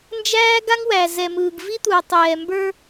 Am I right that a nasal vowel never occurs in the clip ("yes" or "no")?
yes